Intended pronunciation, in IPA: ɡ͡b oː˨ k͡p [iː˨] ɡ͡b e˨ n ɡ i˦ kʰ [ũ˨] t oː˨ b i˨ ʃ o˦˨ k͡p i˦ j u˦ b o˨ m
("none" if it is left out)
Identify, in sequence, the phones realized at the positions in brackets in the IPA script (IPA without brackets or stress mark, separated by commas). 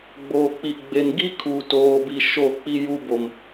i˨, u˨